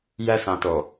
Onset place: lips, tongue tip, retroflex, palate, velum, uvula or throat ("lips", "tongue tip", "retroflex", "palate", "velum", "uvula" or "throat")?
palate